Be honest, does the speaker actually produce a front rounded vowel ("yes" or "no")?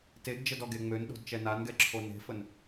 yes